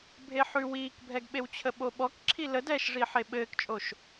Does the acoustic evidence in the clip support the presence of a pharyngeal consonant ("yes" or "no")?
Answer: yes